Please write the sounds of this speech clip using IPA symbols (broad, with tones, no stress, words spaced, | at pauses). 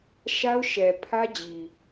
ʃa˦ʊ̯ʃɛ˨pʰä˦d͡ʑi˨